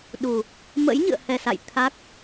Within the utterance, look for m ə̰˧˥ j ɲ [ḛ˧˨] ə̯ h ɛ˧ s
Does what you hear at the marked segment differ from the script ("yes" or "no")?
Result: yes